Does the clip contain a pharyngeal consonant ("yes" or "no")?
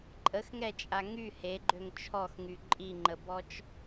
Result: no